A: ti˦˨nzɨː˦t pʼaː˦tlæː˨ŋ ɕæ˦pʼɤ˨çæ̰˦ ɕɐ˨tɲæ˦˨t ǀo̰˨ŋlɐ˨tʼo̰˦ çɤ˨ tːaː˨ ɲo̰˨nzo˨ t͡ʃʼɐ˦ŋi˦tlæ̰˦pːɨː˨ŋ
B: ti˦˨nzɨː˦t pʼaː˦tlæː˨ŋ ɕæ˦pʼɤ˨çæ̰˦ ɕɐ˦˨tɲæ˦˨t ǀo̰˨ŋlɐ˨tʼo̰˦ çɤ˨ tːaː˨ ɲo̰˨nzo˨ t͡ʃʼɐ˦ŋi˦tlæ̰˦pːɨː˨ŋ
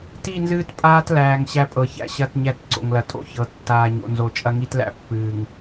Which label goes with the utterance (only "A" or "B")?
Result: B